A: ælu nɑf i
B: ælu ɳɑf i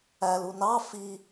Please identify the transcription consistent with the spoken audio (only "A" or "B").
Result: A